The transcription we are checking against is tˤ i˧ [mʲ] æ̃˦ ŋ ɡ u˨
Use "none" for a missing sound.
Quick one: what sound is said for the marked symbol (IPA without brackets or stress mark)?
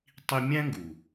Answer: mʲ